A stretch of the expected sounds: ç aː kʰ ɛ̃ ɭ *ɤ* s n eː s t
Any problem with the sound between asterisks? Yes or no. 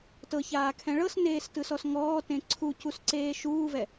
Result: no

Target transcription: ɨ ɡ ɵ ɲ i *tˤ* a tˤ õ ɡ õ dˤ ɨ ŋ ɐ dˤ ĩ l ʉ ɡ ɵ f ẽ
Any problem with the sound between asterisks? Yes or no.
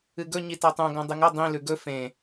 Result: yes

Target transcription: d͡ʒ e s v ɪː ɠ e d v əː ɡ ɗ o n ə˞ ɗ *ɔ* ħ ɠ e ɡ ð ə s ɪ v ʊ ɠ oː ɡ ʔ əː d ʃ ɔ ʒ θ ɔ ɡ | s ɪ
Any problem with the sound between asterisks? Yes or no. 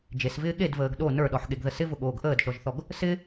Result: no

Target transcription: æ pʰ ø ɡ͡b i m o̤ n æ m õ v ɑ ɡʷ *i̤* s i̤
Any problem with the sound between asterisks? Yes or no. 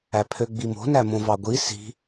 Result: yes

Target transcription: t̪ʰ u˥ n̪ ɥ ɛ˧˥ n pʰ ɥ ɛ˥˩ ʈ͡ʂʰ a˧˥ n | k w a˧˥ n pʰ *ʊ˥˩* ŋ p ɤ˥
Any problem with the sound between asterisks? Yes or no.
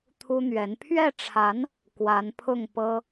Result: no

